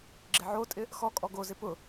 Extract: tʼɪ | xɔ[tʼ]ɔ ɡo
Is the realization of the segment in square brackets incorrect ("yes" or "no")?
yes